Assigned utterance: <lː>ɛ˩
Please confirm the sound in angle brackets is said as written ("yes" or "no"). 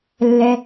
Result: yes